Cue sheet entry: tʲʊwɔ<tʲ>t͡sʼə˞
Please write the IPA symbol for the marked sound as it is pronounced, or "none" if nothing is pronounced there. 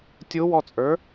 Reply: none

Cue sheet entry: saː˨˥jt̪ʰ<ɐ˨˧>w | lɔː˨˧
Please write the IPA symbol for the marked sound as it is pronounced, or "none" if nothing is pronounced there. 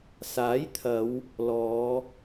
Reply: ɐ˨˧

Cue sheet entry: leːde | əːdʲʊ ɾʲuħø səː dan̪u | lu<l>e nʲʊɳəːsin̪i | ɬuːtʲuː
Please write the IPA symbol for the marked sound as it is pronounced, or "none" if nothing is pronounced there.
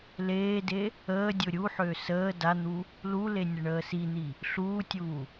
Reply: l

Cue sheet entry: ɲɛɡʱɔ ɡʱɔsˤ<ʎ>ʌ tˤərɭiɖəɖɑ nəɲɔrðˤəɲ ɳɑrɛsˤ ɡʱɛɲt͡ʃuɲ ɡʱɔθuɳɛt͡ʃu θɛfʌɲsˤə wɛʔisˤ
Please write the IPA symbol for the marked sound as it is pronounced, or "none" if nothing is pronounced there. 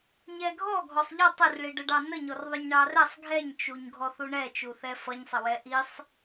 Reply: ʎ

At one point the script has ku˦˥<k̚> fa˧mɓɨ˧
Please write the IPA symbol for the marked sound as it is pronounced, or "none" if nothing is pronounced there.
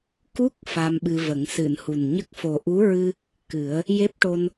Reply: k̚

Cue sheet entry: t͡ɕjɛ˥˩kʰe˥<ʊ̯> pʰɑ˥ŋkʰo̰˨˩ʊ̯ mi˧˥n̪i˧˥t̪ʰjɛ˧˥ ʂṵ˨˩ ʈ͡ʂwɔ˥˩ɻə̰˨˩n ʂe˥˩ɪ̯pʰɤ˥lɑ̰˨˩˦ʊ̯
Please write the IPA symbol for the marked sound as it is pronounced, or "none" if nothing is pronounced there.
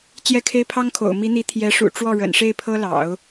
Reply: ɪ̯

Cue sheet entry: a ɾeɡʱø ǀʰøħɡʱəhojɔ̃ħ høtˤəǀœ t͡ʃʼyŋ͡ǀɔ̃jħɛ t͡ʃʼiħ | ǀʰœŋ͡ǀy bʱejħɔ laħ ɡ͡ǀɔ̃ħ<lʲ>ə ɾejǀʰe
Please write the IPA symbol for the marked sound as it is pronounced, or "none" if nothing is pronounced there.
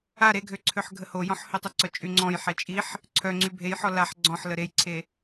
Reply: l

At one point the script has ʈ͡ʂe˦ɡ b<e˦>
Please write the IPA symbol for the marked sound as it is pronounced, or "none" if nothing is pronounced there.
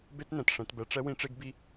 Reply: i˦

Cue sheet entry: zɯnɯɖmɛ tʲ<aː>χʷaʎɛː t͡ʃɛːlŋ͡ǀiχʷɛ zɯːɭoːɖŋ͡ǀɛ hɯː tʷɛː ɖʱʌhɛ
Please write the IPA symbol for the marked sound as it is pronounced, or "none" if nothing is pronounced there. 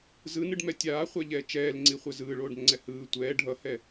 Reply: aː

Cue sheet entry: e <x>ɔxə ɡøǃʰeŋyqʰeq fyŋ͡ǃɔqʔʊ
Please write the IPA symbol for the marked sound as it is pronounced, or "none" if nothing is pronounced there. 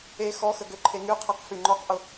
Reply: x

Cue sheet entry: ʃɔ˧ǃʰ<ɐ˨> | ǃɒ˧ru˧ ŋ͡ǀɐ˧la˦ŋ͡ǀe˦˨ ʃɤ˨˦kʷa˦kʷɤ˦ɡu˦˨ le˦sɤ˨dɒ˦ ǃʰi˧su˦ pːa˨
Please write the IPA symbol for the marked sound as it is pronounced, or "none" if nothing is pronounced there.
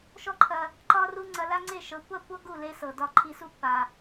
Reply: ɐ˨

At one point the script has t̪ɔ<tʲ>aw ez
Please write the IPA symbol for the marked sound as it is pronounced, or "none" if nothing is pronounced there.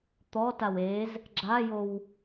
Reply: t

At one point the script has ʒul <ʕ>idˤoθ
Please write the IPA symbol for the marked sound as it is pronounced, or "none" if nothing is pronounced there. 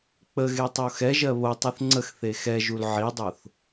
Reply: ʕ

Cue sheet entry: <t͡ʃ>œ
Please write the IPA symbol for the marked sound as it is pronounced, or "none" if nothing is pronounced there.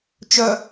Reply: t͡ʃ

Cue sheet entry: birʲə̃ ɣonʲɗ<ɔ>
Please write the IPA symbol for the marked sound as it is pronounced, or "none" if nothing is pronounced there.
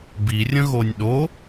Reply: o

